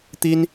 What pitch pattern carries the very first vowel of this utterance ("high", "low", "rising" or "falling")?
high